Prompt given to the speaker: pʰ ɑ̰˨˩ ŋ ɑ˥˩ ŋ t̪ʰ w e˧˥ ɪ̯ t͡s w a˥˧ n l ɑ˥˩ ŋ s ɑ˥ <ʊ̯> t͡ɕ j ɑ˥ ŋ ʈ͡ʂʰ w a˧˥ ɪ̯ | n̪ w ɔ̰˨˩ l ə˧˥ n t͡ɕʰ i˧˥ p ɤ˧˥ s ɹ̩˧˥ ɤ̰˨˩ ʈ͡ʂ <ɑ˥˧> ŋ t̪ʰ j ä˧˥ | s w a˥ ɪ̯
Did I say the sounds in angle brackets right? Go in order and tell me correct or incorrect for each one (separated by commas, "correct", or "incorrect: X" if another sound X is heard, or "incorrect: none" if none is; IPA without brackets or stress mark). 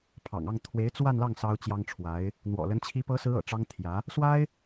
correct, incorrect: ɑ˥